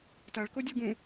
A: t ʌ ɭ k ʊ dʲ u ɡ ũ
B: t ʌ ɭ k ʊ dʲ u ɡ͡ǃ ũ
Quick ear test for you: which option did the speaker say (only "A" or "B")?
A